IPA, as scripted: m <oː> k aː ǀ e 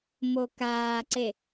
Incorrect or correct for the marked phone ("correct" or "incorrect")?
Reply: incorrect